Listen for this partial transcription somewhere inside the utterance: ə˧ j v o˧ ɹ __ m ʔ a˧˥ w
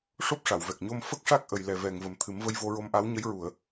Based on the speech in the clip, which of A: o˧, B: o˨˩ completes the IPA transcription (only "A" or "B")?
A